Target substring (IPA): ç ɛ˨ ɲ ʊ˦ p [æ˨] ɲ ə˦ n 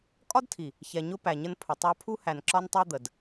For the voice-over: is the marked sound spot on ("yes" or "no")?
yes